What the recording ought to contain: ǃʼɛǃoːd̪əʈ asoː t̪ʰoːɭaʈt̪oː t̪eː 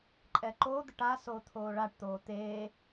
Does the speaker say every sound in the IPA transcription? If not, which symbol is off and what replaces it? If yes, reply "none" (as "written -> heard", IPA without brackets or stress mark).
none